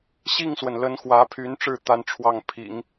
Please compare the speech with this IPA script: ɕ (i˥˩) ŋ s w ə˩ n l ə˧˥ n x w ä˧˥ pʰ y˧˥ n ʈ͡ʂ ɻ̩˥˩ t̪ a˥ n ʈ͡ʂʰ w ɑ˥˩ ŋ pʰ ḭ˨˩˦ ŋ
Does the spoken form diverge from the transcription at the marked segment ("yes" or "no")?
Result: no